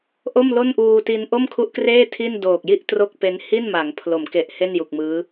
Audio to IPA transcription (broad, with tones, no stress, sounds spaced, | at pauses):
ʔ o˥˩ m l o˥˩ n ʔ uː˧ t i˧ n ʔ o˥˩ m kʰ u˦˥ ʔ k r eː˥˩ tʰ i˥˩ n d oː˨˩ k̚ j i˥˩ ʔ t r o˥˩ k̚ p e˦˥ n h i˥˩ n m a˩˦ ŋ pʰ l o˩˦ m k e˨˩ ʔ h e˥˩ n j u˨˩ k̚ m ɯː˦˥